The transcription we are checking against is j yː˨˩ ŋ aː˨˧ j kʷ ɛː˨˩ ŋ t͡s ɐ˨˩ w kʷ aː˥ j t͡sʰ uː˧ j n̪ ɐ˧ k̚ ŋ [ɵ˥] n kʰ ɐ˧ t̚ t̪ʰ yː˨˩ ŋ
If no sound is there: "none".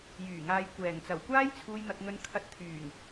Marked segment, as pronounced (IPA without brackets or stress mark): ɵ˧